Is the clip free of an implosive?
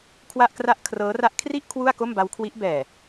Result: yes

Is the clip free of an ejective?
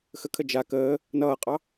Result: no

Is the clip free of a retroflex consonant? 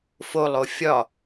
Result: yes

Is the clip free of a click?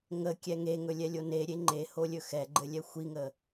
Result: no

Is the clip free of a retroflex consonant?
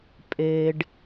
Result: no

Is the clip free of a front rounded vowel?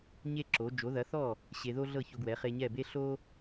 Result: yes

